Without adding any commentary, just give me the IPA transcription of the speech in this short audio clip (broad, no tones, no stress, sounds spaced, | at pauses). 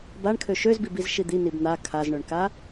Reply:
b a ɳ kʰ ø ʃ ø z b i b i z ʃ i d̪ i n i b n̪ a kʰ a z ɳ ø ɳ k a